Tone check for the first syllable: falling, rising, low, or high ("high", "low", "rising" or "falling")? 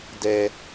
low